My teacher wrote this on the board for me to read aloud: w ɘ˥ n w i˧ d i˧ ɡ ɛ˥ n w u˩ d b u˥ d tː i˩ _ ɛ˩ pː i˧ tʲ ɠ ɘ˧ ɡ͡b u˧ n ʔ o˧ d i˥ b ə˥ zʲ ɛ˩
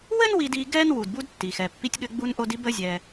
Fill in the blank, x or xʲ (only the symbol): x